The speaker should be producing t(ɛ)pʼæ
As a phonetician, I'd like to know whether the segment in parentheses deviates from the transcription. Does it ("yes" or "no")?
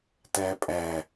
yes